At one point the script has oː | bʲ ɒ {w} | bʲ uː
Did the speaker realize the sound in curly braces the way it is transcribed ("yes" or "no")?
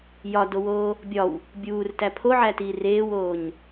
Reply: yes